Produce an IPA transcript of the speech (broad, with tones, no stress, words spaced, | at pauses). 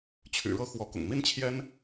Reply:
t͡ɕʰy̰˨˩ɻɤ˥˩ xwɔ˧˥kʊ̰˨˩ŋ mi˥nt͡ɕʰjɛ˥n